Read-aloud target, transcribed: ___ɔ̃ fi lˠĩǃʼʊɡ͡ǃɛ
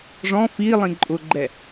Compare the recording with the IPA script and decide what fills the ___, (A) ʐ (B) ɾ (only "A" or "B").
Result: A